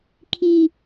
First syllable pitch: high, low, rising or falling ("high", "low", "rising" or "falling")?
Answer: low